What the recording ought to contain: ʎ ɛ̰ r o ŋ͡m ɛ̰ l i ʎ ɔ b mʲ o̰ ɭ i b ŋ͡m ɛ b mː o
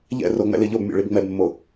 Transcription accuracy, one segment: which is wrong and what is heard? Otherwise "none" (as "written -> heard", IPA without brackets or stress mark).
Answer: ɔ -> o